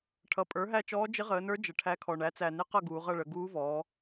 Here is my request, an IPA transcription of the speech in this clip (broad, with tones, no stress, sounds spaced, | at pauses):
ʈʰ ʌ˩˥ pʼ ə˞˩˥ ɦ æ˦˨ t͡ʃ ɔː˧˥ d͡ʒ ɪ˧˥ ʁ əː˩˧ n ə˞˧˥ d͡ʒ ə˨˩ ʈʰ æ˧˥ kʰ ɔ˨˩ ɳ æ˩˥ t͡s æ˨˩ n ɪ˧˥ q ʌ˦˨ ɡ uː˩˧ ʁ ʌ˦˨ ɭ ə˩˧ ɡ uː˧˥ v ɔː˩˧